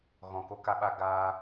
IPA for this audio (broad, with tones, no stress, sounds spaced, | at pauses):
ɣ ɔ̃˨ k o˧ k a˧ ɓ a˧ ɡ aː˧